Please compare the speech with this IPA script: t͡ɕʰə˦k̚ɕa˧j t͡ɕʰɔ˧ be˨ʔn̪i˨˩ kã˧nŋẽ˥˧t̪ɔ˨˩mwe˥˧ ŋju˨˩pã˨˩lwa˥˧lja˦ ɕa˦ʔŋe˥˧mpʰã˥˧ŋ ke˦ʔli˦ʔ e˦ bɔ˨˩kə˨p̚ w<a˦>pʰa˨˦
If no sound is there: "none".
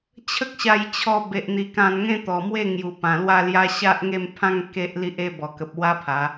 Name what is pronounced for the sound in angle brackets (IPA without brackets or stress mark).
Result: a˦